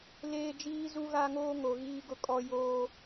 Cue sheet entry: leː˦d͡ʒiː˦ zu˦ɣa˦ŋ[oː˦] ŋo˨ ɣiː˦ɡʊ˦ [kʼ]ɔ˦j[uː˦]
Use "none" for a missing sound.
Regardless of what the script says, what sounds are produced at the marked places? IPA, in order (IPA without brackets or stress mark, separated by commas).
oː˦, kʼ, oː˦